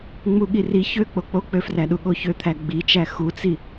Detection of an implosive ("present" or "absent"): present